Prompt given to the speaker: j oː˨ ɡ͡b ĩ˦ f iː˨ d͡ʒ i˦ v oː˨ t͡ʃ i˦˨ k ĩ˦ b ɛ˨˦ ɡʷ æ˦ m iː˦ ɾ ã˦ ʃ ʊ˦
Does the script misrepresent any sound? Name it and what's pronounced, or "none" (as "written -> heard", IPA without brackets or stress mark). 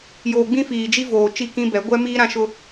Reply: æ˦ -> ɛ˦